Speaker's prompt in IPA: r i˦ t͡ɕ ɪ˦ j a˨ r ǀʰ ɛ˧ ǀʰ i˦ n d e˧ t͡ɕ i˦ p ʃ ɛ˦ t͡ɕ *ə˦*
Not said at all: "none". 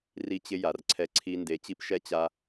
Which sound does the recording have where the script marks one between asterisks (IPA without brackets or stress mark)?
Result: a˦